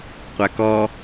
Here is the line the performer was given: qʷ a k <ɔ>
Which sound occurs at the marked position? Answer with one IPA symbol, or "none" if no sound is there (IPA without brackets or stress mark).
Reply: ɔ